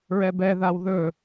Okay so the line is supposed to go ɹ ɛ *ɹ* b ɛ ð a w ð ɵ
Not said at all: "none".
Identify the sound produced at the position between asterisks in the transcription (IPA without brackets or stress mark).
none